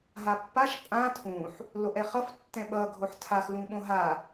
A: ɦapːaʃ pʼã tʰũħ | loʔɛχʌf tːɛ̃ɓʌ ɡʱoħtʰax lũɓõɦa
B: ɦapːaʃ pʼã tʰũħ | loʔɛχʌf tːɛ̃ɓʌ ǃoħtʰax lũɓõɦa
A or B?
A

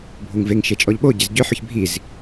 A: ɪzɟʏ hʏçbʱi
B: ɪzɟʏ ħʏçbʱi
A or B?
B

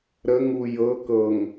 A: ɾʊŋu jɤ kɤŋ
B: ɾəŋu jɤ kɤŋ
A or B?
B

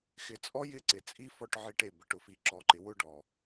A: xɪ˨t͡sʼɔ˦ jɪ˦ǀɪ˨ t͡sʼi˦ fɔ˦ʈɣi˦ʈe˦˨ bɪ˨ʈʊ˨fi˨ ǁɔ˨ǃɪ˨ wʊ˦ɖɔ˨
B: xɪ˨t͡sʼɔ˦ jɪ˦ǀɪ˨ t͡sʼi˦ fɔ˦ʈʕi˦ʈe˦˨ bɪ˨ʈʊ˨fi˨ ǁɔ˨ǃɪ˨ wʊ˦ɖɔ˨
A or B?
B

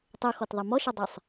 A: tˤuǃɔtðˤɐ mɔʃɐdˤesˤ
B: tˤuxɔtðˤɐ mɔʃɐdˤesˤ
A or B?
B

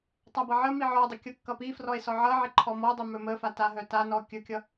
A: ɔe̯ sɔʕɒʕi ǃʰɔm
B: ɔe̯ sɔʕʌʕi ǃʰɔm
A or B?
B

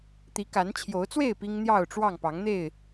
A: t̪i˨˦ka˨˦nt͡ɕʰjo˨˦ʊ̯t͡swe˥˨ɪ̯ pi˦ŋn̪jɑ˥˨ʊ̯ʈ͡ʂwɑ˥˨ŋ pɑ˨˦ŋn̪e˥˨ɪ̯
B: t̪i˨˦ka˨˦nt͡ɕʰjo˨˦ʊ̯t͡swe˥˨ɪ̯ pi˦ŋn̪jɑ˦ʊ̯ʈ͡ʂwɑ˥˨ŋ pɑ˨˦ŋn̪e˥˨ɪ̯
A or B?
A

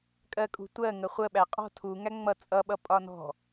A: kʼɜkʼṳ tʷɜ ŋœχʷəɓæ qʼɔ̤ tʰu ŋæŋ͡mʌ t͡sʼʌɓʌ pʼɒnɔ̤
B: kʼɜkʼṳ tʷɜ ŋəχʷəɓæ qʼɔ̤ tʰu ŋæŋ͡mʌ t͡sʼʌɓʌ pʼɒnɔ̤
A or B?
B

